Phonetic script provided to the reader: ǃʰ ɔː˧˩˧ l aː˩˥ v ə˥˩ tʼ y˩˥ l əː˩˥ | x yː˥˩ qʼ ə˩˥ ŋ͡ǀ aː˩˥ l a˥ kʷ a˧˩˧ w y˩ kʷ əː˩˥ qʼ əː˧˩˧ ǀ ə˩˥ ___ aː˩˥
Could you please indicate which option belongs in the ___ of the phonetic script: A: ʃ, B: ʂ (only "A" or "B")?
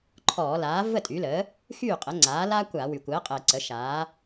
A